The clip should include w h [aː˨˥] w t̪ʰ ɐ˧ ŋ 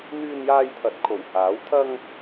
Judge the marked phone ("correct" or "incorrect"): correct